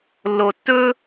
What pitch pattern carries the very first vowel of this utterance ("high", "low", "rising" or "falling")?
low